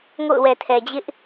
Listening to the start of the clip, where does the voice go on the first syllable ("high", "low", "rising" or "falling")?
falling